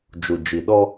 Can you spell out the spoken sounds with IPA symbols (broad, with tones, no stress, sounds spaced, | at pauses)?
d͡ʒ u˨ d͡ʒ i˨ ɗ ɔ˦